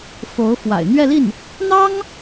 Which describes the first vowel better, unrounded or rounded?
rounded